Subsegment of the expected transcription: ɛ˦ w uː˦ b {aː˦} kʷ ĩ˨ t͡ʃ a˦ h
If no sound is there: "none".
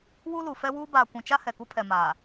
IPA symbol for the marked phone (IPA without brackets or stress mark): aː˨